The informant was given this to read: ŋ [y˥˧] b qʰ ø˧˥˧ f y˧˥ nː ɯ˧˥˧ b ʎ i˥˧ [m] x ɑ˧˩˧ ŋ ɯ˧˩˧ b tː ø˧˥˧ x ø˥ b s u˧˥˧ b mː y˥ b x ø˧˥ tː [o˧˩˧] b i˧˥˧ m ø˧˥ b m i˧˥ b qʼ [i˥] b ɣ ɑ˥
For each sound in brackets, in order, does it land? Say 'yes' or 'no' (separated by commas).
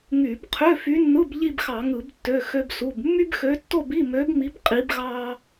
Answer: no, no, no, no